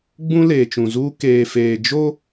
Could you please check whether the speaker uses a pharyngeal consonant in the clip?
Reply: no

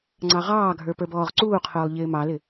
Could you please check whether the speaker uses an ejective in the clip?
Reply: no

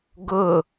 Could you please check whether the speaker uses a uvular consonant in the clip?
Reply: no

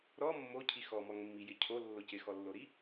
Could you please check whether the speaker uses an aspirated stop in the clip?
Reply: yes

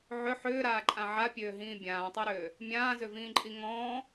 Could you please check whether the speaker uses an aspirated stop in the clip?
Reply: no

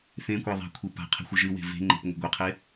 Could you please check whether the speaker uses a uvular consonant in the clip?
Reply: yes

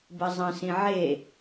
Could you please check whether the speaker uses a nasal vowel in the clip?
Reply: yes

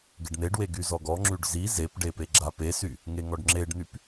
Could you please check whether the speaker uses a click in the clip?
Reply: yes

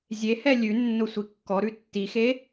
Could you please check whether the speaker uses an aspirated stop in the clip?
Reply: no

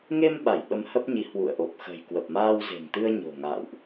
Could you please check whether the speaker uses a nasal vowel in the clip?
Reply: no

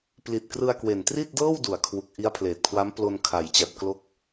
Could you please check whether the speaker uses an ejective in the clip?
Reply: no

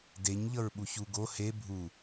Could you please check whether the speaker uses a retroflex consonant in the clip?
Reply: no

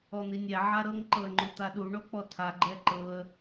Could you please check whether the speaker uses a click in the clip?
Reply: yes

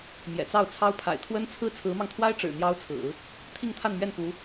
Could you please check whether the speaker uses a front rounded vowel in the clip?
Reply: no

